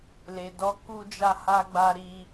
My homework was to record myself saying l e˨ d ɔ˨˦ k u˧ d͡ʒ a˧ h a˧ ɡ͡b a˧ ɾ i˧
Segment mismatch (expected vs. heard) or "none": none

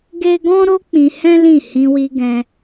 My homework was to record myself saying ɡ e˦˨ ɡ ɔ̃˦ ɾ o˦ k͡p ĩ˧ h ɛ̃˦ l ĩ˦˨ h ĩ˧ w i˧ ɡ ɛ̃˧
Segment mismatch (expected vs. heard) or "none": e˦˨ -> e˦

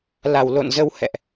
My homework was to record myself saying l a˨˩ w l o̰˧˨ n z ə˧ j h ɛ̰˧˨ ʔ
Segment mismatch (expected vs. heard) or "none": j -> w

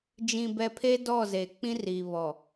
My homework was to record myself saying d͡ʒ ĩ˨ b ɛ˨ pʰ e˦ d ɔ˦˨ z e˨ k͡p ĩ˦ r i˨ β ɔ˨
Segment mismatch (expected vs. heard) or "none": none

